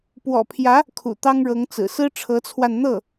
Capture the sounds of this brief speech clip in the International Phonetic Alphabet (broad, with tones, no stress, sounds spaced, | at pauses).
p w ɔ̰˨˩ pʰ j ä˧˥ | kʰ ṵ˨˩ t̪ ɑ˥ ŋ ɻ ɤ˧˥ ŋ t͡s ɹ̩˨˩ s ɹ̩˥ ʈ͡ʂʰ ɤ˧˥ t͡sʰ w a˧ n n̪ ɤ˥˩